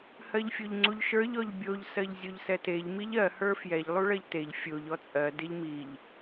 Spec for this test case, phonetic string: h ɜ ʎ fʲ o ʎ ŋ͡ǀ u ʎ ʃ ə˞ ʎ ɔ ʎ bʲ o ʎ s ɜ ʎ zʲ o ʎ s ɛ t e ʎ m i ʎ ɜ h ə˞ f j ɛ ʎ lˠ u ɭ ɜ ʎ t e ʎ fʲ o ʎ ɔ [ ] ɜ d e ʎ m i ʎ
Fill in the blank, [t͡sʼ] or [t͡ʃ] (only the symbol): t͡sʼ